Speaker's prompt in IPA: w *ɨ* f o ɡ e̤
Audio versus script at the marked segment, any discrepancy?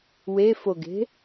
yes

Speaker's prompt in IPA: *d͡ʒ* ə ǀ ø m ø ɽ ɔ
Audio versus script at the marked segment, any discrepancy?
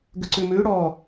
yes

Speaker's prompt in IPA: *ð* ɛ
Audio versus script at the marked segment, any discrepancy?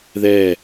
no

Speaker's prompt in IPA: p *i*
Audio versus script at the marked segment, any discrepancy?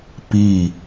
no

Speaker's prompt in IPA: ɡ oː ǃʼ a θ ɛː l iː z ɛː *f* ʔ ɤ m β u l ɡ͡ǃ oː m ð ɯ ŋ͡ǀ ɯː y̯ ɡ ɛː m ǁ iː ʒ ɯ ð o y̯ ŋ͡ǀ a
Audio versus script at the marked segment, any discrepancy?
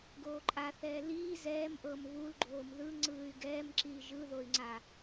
yes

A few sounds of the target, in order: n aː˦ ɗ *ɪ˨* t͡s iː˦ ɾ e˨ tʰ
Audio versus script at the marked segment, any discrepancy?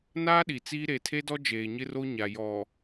yes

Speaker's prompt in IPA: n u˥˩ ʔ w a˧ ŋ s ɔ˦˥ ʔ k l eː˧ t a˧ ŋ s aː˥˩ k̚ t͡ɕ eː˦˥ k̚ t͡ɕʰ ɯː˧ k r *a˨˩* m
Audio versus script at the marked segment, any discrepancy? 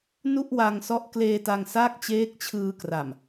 no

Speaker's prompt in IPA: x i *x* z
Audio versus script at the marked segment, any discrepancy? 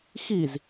yes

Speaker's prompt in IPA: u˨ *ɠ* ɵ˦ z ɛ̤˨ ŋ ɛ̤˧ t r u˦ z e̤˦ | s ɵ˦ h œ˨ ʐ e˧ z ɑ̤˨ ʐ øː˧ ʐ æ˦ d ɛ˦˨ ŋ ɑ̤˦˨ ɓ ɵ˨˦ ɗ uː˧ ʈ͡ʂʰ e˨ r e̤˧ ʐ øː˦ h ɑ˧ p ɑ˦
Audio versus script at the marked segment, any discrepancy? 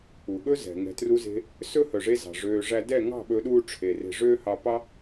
no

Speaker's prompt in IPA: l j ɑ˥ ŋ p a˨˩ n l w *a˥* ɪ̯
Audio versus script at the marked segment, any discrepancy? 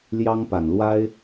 no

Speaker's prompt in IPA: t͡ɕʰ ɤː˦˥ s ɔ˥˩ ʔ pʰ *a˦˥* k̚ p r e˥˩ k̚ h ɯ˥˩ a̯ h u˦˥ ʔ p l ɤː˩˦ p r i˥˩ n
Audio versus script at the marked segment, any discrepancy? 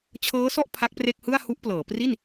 no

